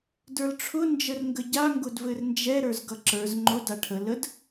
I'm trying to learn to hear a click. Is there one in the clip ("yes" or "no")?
yes